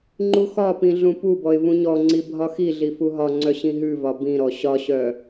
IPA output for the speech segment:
ŋ͡ǃuxɒpĩ ɮũpubɔɪ̯ vũɲɔŋ͡ǀi bʱɒxiɮi fuɦɒŋ͡ǀœ ɕĩɦʉvɒ bĩɾɔ ɕɒɕœ

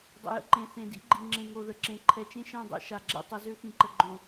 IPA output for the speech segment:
dˤə̰˨jə̰˦ǃẽ˨ θẽ˨dḭ˦ɡ͡ǃi˨ ŋ͡ǁẽ˨ŋo˨ðə˨ǁẽ˨ ǃʰɛ˨t͡ʃẽ˦ʃɛ̃˦˨ dˤɛ̰˦ʃa˨ɡ͡ǁɛ̰˦tˤə˨˦ zø˦xĩ˨ǃə˨ ɡ͡ǃõ˨

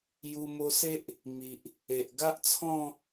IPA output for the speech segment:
ju˧mo˧se˦ʔ | mi˨ʔ | e˨ʔɡa˦ʔt͡sʰɔ̃˥˧

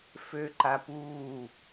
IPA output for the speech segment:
føǃapuː

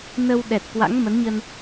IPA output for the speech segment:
nə˧w ɗɛ˨˩t̚kwa̰˧˥ŋmə˨˦nɲə˧n

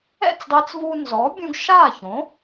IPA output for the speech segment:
ɛ̰˥˩t͡sdˤe˧t͡svuː˧nzɔ˩˥ bʲũ˧ɡʃaː˥˩ çõ˩˥

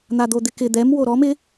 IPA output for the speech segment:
n̪ad̪od̪ɪkɪ d̪ɛm woɾɔm ɪ

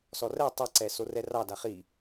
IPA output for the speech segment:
sɔrɛ tˤɛǀɛ sorɛrɑda χi

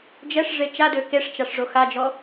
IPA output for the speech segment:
d͡ʒɛʂ ʐet͡ʃadø keʂt͡ʃaʂ ʐoxad͡ʒɔ

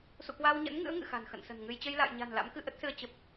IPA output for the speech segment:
sṵ˧˨kwaː˧wɲə̰˧˥n ŋɨ̰˧˥ə̯ ŋɨ̰˧˨xa̤˨˩n xə̰˧˨nsə̤˨˩nŋɨ˧j t͡ɕə˧jla̰ː˧˨jɲa̤˨˩n la̰˧˥mkɨ˧ʔə˦˥t̚sɨ˧ə̯ t͡ɕə˨˩p̚

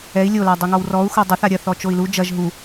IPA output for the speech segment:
ɛi̯ lʲo ladˤɛŋɔwrɔu̯ xodˤɐθ aɾʲɐ θɔt͡ʃoi̯lu d͡ʒɐʒ ɦu

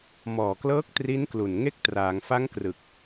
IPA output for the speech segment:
mɔː˨˩klɤː˦˥k̚ tri˦˥nklu˨˩n ŋe˦˥k̚traː˩˦ŋfa˦˥ŋkrɯ˨˩k̚

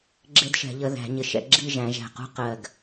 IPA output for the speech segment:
ɡ͡ǁɪ˦˥dʃɛ̤˨˩˦ʎə˨˦ ðæ̤˨˩˦ ɲɪ˧˩ʃɛ̰˥˧ ɡ͡ǁi˥˧ʒæ̃˨˩˦ʒæ̤˧˩qṳ˥˧ qɜ˧˩ɡ

